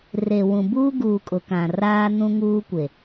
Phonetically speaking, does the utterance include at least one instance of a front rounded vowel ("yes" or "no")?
no